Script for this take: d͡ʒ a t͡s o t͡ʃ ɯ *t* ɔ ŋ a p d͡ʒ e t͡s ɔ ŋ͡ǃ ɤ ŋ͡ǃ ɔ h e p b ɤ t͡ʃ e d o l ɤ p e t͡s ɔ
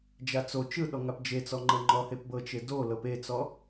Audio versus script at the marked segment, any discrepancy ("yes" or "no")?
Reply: yes